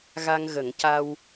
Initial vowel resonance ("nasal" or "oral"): oral